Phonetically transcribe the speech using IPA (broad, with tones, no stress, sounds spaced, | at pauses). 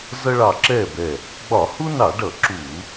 z ʌ˦ ɭ ɑ˧˩ ǁ ɛ˥˩ b ɛ˧˩ | ɡ͡b ɒ˧˩˧ h u˦ n ɑ˧˩˧ ɖ ʌ˧˩˧ ǁ u˧˩˧